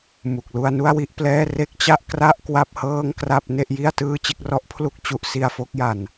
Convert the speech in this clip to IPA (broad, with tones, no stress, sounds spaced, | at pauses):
m u˨˩ k̚ l u˧ a̯ n u˥˩ a̯ w i˦˥ ʔ p l ɛː˥˩ r e˦˥ k̚ t͡ɕ a˥˩ ʔ k r a˥˩ ʔ k w a˥˩ p̚ h ɤː˥˩ ŋ k r a˥˩ p̚ n e˥˩ ʔ j i˥˩ a̯ t ɯː˥˩ t͡ɕ e˦˥ k̚ r ɔ˦˥ ʔ pʰ l u˥˩ k̚ t͡ɕ u˦˥ ʔ s i˧ a̯ f o˦˥ k̚ j a˨˩ n